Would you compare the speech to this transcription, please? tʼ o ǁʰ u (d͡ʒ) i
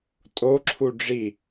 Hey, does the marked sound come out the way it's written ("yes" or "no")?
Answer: no